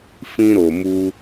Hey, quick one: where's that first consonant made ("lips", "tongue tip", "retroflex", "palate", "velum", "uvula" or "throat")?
lips